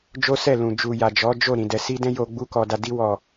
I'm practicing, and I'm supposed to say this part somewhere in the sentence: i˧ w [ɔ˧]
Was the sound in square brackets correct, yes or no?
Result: no